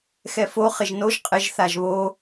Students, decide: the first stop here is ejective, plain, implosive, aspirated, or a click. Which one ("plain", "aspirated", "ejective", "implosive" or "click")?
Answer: ejective